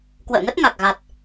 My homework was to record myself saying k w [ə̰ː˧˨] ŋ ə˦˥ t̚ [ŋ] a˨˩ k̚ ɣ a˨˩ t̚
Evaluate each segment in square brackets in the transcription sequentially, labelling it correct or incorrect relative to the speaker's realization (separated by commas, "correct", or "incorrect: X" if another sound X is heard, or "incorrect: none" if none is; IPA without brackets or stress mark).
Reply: correct, correct